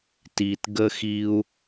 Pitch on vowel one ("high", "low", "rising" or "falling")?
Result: low